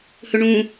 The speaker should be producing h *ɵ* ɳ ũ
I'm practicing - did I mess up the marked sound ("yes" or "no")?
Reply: no